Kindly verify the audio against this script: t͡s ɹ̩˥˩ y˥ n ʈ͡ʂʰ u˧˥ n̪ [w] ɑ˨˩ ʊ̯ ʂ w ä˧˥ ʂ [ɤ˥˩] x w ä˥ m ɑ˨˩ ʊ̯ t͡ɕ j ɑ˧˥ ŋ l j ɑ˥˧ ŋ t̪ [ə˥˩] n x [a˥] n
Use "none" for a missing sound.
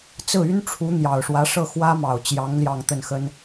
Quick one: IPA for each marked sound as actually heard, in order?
j, ɤ˥˩, ə˥˩, ə˥

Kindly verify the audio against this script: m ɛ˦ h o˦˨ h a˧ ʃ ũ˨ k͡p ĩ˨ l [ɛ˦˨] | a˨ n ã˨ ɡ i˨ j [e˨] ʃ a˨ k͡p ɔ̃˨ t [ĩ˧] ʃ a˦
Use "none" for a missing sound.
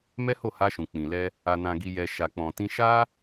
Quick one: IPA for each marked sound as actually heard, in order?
ɛ˧, ɛ˨, ĩ˧

